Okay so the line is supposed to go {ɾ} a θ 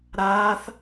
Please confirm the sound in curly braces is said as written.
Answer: yes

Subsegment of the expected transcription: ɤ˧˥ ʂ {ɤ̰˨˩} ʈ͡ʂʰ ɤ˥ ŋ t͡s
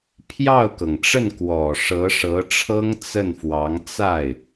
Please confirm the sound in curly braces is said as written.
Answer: no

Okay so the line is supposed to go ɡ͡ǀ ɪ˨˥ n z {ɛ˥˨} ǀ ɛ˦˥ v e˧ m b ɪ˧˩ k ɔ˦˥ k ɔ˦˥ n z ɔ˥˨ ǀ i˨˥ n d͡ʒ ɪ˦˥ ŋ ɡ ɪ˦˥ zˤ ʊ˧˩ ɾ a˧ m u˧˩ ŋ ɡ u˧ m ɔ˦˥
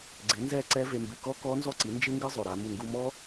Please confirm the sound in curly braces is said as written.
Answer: yes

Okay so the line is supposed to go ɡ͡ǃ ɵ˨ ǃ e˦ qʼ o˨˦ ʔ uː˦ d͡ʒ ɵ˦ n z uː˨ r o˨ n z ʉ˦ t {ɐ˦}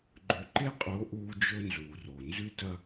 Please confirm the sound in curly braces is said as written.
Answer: yes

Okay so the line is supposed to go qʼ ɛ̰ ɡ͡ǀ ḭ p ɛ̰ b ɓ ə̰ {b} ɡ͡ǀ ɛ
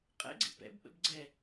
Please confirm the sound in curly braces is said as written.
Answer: yes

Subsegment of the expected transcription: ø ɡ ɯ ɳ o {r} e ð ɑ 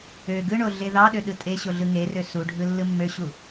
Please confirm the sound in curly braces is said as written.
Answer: no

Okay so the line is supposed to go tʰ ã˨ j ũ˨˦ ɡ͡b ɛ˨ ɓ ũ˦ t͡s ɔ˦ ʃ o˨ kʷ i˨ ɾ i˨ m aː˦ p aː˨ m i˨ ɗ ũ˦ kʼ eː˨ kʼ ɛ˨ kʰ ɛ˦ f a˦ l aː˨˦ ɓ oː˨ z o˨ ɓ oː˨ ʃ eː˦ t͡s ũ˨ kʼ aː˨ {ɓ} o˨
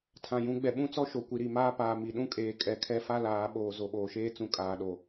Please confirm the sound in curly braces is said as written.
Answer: no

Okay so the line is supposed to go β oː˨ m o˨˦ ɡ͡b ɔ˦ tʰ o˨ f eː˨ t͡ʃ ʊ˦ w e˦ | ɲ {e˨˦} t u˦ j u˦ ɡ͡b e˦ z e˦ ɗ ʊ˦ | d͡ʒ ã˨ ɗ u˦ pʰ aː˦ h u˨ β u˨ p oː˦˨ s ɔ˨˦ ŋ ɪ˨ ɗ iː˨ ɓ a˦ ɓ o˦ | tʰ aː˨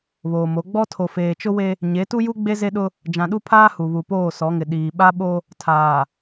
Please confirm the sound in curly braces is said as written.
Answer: yes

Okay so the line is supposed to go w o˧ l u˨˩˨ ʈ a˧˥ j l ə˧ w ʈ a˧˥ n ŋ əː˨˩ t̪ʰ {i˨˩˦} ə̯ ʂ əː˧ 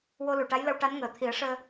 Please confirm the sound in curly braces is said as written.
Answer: yes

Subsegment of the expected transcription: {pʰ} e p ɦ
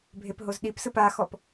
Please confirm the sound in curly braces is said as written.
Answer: no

